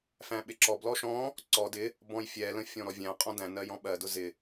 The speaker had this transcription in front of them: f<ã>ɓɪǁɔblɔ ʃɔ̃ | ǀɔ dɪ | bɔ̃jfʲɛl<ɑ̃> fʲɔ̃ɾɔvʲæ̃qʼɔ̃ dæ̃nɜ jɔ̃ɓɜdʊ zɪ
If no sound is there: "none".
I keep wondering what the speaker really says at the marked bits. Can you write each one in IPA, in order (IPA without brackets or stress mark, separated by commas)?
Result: æ̃, ə̃